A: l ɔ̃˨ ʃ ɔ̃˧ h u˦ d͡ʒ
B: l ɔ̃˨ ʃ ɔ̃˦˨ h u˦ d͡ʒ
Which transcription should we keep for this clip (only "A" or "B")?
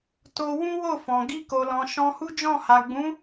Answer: A